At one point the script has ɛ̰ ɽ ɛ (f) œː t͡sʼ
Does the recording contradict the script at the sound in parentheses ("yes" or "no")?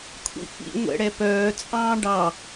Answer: yes